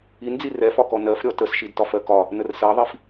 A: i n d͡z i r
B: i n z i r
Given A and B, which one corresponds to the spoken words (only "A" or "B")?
A